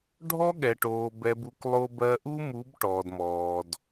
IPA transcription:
ɖʱ ɔ˦ ɠ ɛ˨ ʈ oː˨ b ɛ˨ b u˨ k lˠ o˦ b ɜ˦ ʔ u˦ m u˨˦ b ʈ ɔː˨ d m ɔː˨ d

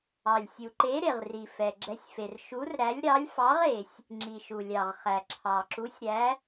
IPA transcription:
ɑ˨ lʲ sʲ u˨ ǃ e˧˥ ɾ e˨ ʁ r i˨ f ɛ˨ ɡ͡ǁ ɛ˧˥ sʲ f e˨ r ʃ u˧˥ r ɾ æ˧˥ lʲ ɾ ɑ˧˥ lʲ f ɑ˧˥ ʁ e˨ sʲ | ŋ͡ǁ i˨ ʃ u˨ lʲ ɑ˨ ʁ χ æ˨ ǁʰ ɑ˨ ǁ u˧˥ sʲ ɾ æ˧˥

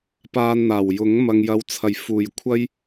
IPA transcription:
p aː˧ n n̪ aː˨˩ w j ʊ˨˥ ŋ m ɐ˨ ŋ j ɐ˨˧ w t͡sʰ ɐ˨˩ j f uː˨˩ j kʷʰ ɐ˥ j

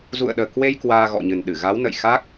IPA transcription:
z ṵ˧˨ ə̯ ɗ əː˨˩ k w e˧ j k w aː˧ ɣ ɔ̰˧˨ ɲ ɨ˨˩ n ɗ ɨ˧˩ ɣ a˨˦ w n ə̰˧˨ j x a˦˥ k̚

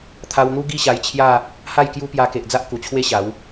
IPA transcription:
t̪ʰ a˧ w n̪ u˦ ɡ i˥˧ ɕ a˧ j t͡ɕʰ j a˥˧ | h a˥˧ j k j u˦ p j a˧ k e˨ ʔ d͡z a˦ ʔ k u˨˩ t͡ɕʰ w e˦ ɕ a˨˦ w

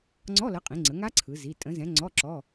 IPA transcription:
ŋ͡ǀ ɔ˧˥˧ l ə˨˥ qʼ ĩ˩˧ ŋ͡ǀ ə˩˧ ŋ a˦˥ ǀʰ ɯ˩˧ z i˩˧˩ tʼ ə̃˨˥ z ɛ̃˨˥ ŋ͡ǀ ɔ˧˥˧ ǁ ɔ˧˥˧

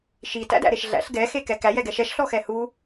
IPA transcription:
ʃ i t æ̰ d æ̰ ɾ e ʃ ɮ æ̰ ɬ ɡ ɛ x e k ɛ k æ j ɛ ɡ ɛ ʃ ɛ ʃ ɬ ɔ x ɛ h u

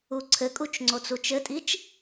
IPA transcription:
u ǀʰ ɘ kʼ u t͡ʃ ŋ͡ǀ o t͡s u t͡ʃ ɘ tʼ i t͡ʃ

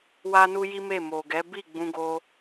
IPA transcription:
w a˦ n u˦ j i˦ m e˦˨ m o˨ ɡ ɛ˨˦ b i˦˨ ɡ͡b ũ˧ ɡ o˧

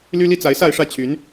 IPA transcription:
l y˦ l i˦ t͡s a˨˦ ɪ̯ s a˥˨ ɪ̯ ʂ ä˥˨ t͡ɕʰ y˨˦ n

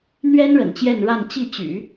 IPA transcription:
n̪ ɥ ɛ˥ n ɻ ə̰˨˩ n t͡ɕ j ɛ˥˧ n ɻ a˥˧ n t͡ɕ i˥˩ t͡ɕ y̰˨˩˦

